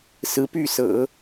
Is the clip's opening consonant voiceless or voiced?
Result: voiceless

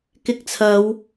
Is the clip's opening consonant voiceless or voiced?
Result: voiceless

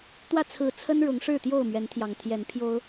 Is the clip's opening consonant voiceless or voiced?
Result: voiceless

